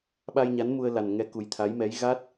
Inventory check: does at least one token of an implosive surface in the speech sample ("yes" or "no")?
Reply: yes